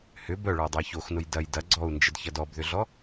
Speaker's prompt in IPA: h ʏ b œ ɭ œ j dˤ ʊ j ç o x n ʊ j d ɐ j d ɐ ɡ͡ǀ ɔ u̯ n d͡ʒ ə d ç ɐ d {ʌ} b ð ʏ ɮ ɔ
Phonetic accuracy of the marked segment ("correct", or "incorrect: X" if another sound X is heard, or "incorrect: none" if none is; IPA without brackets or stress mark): incorrect: ɔ